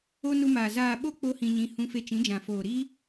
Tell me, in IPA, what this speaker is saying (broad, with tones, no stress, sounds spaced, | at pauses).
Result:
o˧ n u˧ m aː˨ z aː˨ ɓ o˧ k͡p o˦ h ĩ˧ ɲ ĩ˧ h ũ˧ f e˧ t͡ʃ ĩ˨˦ d͡ʒ ã˨ f oː˨ ɾ i˦